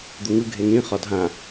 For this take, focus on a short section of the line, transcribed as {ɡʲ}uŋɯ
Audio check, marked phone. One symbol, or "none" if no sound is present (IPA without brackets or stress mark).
d̪